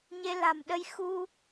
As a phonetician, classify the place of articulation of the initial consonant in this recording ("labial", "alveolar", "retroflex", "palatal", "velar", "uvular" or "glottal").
palatal